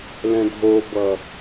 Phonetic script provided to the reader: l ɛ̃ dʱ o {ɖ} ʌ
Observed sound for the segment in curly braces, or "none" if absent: b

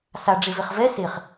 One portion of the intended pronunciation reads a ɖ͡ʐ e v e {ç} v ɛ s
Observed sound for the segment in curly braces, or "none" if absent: χ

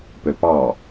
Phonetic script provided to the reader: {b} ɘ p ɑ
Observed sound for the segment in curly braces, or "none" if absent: p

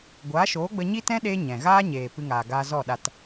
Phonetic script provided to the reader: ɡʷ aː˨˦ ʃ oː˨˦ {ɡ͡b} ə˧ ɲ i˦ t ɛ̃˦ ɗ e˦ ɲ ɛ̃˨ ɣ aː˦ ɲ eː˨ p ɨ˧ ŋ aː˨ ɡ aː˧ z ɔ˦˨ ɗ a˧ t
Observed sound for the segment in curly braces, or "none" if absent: ɡ͡b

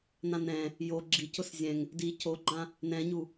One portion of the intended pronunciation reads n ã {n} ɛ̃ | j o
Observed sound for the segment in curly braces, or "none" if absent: n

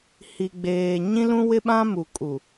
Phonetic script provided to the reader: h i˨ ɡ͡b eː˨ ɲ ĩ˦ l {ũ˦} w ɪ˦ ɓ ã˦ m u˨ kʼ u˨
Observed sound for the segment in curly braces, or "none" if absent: ũ˦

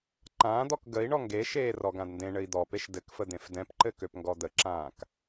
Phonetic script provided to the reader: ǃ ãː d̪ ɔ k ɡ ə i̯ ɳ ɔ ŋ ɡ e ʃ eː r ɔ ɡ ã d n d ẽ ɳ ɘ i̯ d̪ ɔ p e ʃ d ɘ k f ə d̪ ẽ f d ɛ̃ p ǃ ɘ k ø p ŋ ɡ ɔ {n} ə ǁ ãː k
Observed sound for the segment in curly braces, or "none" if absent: d̪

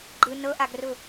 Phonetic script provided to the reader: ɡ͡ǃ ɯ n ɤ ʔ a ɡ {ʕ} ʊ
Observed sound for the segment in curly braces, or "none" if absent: r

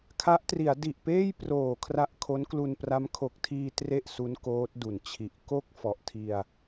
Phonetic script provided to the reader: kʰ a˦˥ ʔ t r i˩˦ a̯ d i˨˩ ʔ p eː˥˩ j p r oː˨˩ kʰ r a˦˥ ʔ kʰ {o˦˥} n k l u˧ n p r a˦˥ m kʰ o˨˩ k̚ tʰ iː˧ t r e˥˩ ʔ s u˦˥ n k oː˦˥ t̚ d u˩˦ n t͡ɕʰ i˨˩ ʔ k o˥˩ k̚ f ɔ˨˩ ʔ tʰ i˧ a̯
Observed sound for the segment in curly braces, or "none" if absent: o˦˥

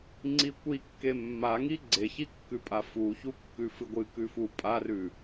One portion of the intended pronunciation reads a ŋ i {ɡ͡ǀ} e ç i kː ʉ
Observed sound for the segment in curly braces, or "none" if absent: ɡ͡ǀ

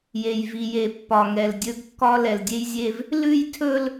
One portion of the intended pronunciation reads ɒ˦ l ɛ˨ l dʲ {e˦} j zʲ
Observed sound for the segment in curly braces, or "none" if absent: e˦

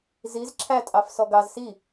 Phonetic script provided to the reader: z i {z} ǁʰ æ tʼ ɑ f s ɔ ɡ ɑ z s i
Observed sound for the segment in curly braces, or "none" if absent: z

